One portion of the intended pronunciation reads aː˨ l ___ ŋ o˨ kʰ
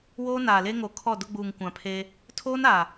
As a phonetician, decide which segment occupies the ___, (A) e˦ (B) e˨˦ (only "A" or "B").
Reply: A